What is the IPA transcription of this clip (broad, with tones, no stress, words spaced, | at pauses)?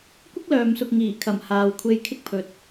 kʷɪ˥k̚lœː˨msʊ˨k̚ ŋiː˨˩kʰɐ˨˩m haː˨wkʷʰe˧jkʰɪ˥k̚pʰɵ˨t̚